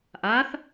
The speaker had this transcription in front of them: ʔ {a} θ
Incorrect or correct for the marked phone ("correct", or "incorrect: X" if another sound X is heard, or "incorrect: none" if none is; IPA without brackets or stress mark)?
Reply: correct